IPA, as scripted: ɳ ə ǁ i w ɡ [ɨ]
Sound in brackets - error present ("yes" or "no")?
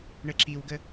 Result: yes